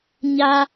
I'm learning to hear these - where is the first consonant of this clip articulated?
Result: palate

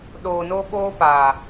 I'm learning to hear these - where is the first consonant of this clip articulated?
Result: tongue tip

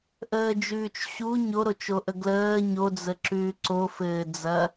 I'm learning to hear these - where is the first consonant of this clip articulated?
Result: throat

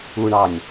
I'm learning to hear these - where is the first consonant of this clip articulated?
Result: retroflex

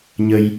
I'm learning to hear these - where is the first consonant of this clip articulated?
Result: palate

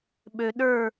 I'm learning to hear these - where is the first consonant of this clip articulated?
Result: lips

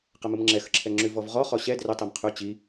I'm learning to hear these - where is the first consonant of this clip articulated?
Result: uvula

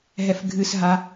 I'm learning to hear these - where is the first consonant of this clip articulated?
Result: throat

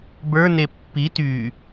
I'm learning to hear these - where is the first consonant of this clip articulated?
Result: lips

